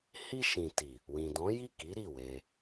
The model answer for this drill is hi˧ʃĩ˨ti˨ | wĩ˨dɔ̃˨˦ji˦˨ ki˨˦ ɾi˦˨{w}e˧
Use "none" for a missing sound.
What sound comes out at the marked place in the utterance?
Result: w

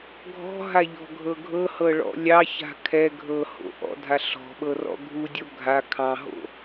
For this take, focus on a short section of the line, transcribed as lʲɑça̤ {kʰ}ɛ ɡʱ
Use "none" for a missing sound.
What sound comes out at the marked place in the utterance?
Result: kʰ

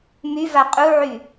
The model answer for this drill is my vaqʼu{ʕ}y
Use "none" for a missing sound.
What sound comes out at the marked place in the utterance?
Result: ʕ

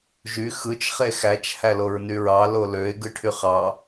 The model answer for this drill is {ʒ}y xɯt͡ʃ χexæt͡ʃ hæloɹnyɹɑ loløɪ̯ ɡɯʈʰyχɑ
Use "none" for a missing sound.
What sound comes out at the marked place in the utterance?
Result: ʒ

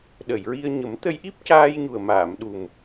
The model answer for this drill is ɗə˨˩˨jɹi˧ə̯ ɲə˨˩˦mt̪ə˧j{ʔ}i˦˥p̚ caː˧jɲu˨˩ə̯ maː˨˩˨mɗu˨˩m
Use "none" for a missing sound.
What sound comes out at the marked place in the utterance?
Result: ʔ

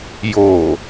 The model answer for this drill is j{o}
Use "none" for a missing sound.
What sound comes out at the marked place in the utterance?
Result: o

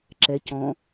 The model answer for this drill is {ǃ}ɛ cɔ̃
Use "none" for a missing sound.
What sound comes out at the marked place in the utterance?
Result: ǁ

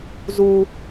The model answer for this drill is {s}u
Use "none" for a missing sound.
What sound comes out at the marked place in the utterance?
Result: z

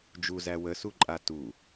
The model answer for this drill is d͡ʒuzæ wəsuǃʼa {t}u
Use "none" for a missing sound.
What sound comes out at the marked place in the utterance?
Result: t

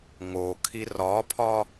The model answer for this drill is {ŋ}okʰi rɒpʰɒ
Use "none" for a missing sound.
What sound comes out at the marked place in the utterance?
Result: ŋ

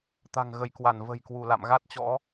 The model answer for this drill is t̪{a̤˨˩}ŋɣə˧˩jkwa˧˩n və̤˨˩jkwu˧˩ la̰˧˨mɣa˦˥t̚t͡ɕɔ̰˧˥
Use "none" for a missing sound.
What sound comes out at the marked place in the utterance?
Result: a̤˨˩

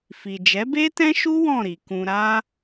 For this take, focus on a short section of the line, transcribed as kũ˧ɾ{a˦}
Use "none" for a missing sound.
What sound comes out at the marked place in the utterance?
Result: a˦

